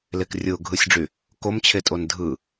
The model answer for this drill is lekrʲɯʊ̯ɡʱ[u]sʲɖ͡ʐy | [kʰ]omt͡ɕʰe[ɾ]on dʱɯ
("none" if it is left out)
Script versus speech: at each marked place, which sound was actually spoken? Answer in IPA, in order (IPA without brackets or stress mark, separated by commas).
ɯ, k, tʼ